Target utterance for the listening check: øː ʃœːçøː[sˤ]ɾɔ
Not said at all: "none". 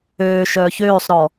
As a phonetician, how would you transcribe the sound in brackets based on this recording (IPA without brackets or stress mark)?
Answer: sˤ